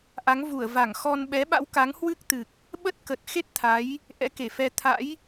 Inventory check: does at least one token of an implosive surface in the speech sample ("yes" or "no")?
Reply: yes